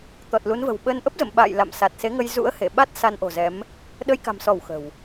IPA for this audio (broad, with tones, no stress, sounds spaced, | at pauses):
t̪ ɔ˨˩ t̚ l u˨˦ n v ə̤˨˩ w ɓ əː˧ n ʔ ə˦˥ p̚ z ə̰˧˨ m ɓ a̰ː˧˨ j l a̰˧˨ m s a˨˩ t̚ s e˨˦ ŋ ə˧ j z ṵ˧˥ ə̯ h e˧˩ ɓ a˦˥ t̚ s a˧ n ʔ o̤˨˩ z ɛ˨˦ m | ɗ ə˧ j k a̤˨˩ m s ɔ˧˩ w x ə̤˨˩ w